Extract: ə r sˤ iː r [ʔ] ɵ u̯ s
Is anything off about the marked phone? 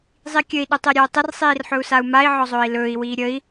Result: yes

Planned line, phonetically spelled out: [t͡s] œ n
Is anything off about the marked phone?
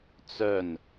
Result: no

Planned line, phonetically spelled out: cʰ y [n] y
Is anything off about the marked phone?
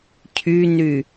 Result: no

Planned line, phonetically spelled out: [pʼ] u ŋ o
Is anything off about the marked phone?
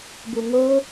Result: yes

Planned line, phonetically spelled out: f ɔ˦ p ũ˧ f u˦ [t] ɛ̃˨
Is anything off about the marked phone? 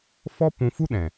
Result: yes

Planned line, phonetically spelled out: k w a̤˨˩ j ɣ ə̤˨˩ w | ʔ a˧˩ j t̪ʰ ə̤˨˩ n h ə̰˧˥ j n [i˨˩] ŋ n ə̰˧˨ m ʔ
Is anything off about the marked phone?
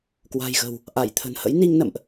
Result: yes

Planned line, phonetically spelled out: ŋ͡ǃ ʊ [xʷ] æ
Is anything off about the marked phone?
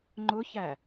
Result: yes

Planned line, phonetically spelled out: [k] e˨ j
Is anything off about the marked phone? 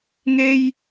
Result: yes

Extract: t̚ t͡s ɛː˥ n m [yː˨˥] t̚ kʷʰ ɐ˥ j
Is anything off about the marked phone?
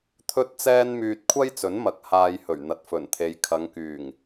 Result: yes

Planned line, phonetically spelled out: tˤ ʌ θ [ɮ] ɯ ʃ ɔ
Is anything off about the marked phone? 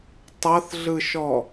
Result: no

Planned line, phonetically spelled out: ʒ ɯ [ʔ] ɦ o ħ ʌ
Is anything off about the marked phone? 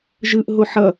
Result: no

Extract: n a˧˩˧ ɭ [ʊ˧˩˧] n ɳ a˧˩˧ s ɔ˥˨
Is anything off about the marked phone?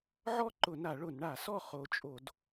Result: no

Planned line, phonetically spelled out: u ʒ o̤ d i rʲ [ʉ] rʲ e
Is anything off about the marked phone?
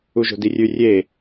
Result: no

